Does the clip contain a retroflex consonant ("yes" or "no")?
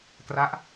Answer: no